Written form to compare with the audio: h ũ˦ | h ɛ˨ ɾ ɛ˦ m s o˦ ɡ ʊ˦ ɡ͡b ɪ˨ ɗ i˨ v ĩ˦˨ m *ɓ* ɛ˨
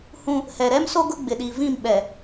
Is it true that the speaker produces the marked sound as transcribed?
yes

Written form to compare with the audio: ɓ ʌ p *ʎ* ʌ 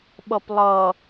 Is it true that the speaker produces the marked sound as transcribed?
no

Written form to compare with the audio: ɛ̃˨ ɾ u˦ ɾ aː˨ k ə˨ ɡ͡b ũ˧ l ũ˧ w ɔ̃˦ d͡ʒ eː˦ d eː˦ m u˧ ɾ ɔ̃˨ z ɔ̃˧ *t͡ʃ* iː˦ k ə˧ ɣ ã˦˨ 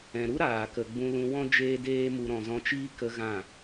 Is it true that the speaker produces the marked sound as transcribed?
yes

